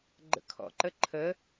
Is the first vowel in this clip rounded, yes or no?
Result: no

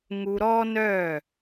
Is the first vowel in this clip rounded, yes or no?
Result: yes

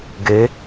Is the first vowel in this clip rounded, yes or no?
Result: no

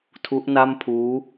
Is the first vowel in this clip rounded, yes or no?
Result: yes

